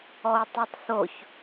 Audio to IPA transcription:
ɔu̯tˤutˤθoç

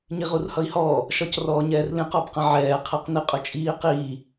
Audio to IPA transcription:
ɲiʁurhʌi̯hɔː | ʃɒcrɔːɲɛːrlĩq ɒbqə̃ʕɛː qʰæqniqʼʊt͡ʃʼiː qiː

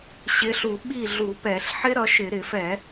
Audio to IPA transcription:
ɕɪ˨˦ɬu˧˩˧ ɓi˥˩ɮu˧˩˧pɛ˧˩˧ɬ ħɪ˦˥ɾʌ˨˦ʃɪ˧˩˧ ɾɪ˧˩˧fɛ˧˩˧

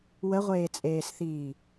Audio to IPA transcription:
wəʁʷeːt͡sʼeːsθiː

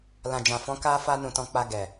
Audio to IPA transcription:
lã˨d͡ʒã˨fɔ̃˨˦ ka˦fa˦nũ˧tɔ̃˧ k͡pa˧ɡɛ˨

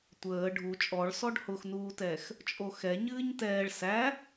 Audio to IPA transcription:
tʷəː ɖʱu t͡ʃʼɔɭsɔɖ hʊxnuːtɛx | t͡ʃʼoxɛ ɲɨːɲtɛːɭ sæ

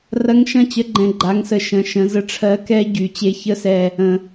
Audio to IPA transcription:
rɐ˨˥ŋʃɐ̃˧˥˧t͡ɕə˨˥ɡ͡ǃɛ̃˩˧ ɡ͡ǃa˩˧ŋsə˨˩ ʃə̃˩˧ ʃə̃˩˧zə˦˨ʈ͡ʂʰɜ˨˥ kɛ˦˥ ɟy˩˧ t͡ɕe˨˥çə˧˥˧sɛ˦˨ | ə̃˨˩

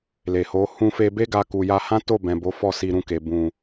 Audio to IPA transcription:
le˨ho˨˦ hũ˧fe˧be˦ ɡa˧ku˨ja˧ hã˦to˦˨bɛ̃˨ bo˨˦fɔ˦˨si˧ɾũ˧ ke˨ bũ˨

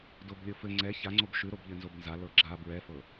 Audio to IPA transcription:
doblʲofɘ ŋ͡ǀɛ çaŋ͡ǀob ʃʉɾob ʎɘnzobnza lɤɡ͡ǁa bɹɛfɤ

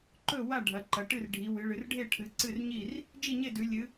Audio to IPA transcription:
ǃɵ˥˩wa˥˩ ɖʱɐ˩˧ǃɐ˩˧ʈɨ˥˩r ɖʱi˩˧wɨ˩˧ɭɨ˩˧rɖʱe˥˩ ʈʰɨ˩˧ǀɨ˥˩rɲi˥˩r | d͡ʒi˥˩ɲe˥˩ dʉ˩˧lʲɨ˩˧

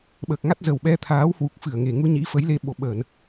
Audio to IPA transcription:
ɓəː˨˩k̚ŋa˦˥t̚ zə˨˩wɓɛ˧t̪ʰaː˨˦whwu˨˩k̚ fɨ˧˩ə̯ŋe˨˩ ŋu˧ɲḭ˧˥ fə˨˦jle˧ ɓo˨˩ɓəː˧˩˨n

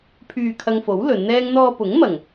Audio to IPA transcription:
pʰyː˨ kʰɐ˧ŋfo˨˥w lɵ˨˧nn̪ɛː˥ŋ n̪ɔː˧pʊ˨˥ŋmɐ˨ŋ

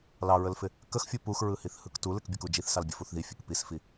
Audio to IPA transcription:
lɑɹəlfɪ | kəxfʲu puxɹɯhiθ hɯktulɪk bʲəkud͡ʒiθsɑl bʲəfuθðifʲək pisfi

